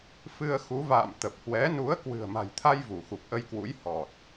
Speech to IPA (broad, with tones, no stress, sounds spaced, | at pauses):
f ɨ˧ ə̯ x u˨˦ v a̰ː˧˨ m t̪ ə˨˩ p̚ h w ɛ˨˦ n u˨˦ ə̯ k w ɨ̤˨˩ ə̯ m a̤˨˩ j t̪ʰ a˧ j v u˧˩ x u˨˩ p̚ ʔ ə˧ j k w ṵ˧˥ j h ɔ˨˩ t̚